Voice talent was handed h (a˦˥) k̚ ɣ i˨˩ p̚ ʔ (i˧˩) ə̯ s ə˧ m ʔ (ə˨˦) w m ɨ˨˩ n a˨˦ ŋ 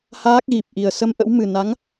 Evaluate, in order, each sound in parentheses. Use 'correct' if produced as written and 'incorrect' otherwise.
incorrect: aː˦˥, incorrect: i˨˩, incorrect: ə̰˧˥

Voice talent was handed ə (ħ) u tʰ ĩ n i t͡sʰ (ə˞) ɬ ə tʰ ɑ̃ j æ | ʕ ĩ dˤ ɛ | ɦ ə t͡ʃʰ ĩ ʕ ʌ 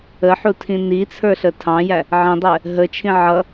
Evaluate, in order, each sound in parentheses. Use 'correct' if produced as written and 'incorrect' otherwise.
correct, correct

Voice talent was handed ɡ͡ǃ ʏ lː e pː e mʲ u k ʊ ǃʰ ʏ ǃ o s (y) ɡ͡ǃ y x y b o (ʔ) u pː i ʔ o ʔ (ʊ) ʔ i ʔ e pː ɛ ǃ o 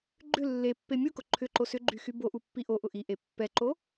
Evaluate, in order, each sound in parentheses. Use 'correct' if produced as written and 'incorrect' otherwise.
incorrect: ʏ, correct, correct

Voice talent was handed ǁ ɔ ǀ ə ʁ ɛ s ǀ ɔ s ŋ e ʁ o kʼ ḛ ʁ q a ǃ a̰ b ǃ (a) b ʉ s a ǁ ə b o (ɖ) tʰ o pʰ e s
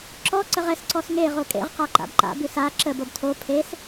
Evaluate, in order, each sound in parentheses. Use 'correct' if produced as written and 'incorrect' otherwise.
incorrect: a̰, incorrect: b

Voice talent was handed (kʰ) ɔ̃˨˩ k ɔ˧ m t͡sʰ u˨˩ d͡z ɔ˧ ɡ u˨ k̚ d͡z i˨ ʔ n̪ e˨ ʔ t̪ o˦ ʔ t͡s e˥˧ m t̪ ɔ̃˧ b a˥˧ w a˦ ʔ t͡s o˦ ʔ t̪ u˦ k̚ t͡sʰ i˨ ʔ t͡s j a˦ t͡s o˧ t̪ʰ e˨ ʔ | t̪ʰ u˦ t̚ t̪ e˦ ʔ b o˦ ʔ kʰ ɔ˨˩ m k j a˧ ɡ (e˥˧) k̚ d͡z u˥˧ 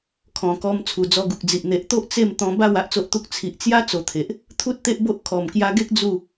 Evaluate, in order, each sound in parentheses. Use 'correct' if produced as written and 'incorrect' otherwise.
correct, incorrect: e˦

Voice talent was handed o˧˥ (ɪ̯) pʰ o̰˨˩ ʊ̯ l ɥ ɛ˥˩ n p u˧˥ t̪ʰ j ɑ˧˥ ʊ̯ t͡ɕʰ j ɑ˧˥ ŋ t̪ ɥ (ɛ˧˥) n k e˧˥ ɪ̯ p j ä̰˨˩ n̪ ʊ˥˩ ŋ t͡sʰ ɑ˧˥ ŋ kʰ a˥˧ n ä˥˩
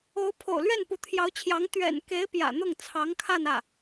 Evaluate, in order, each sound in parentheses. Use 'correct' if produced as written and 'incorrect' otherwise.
incorrect: ʊ̯, incorrect: ɛ̰˨˩

